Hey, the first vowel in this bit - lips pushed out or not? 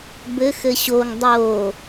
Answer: no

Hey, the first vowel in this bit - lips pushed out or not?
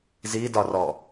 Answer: no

